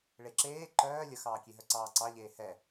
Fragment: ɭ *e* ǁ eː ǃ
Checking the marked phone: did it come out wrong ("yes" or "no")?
no